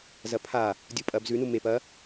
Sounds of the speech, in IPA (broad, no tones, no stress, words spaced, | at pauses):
zɐpʰa | dʲupʼɐb zʉnu mep ɐ